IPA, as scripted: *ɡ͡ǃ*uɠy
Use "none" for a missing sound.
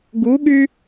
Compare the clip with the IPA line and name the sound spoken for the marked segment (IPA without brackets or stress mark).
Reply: ɡ